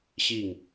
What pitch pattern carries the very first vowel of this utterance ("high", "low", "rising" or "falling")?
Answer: falling